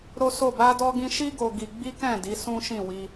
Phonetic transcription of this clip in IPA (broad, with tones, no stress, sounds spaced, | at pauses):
ɾ o˦ s o˦˨ b a˧ d ɔ˧ ɡ ĩ˧ ʃ i˦ ɡ o˧ ɡ i˧ ɡ͡b i˦ k ɛ̃˦˨ d i˨˦ s ũ˦ ʃ ĩ˦˨ w i˧